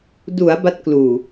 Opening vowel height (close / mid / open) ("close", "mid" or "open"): close